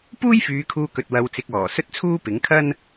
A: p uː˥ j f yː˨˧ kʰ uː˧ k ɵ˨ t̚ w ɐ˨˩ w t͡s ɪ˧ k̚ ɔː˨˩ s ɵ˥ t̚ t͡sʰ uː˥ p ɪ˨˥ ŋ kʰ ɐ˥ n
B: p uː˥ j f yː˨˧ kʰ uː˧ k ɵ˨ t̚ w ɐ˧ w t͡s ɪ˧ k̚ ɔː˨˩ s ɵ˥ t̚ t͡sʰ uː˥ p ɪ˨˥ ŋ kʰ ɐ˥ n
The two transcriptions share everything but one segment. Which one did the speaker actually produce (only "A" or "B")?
B